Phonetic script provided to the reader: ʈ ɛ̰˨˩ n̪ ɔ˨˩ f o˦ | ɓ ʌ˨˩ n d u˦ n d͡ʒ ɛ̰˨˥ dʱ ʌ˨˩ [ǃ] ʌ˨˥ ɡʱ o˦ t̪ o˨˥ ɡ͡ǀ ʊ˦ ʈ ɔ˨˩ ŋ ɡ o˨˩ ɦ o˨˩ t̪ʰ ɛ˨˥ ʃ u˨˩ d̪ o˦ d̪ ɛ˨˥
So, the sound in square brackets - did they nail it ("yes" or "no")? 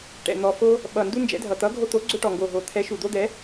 no